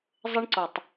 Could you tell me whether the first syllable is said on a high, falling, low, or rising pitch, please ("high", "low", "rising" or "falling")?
high